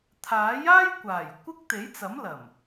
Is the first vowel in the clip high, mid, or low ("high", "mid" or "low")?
low